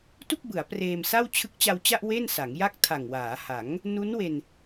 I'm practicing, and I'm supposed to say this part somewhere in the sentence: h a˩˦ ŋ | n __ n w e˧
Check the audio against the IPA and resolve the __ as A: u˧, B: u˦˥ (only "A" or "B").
B